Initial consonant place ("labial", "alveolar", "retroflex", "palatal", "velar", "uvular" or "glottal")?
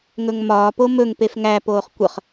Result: velar